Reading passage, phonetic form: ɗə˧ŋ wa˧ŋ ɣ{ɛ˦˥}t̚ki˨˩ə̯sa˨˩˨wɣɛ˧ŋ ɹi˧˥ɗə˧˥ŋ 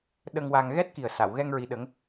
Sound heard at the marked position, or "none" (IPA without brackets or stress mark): ɛ˦˥